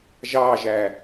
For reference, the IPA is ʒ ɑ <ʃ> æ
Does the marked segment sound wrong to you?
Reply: yes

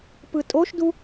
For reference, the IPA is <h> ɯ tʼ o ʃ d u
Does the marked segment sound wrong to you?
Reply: yes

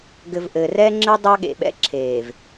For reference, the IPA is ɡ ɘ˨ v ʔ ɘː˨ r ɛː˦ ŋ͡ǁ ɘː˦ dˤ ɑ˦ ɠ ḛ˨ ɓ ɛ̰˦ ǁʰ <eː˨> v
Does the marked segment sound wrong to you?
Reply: no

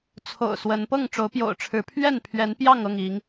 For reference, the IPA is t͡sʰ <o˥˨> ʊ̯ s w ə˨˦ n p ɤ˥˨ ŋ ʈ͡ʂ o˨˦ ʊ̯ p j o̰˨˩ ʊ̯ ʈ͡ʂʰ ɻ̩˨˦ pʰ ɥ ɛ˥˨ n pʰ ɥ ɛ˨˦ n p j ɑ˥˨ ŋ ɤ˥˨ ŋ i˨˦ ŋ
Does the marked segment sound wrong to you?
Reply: yes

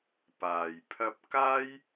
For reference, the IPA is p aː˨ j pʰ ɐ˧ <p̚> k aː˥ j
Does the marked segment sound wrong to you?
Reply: no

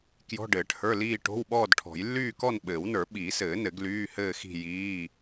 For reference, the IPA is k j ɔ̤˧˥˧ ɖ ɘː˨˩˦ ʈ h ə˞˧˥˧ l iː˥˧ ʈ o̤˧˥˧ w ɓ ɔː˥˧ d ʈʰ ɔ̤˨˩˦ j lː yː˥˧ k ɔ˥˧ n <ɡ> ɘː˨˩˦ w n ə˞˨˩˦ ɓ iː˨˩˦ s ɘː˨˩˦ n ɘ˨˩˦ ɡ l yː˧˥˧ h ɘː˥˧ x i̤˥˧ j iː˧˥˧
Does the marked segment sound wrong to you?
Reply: yes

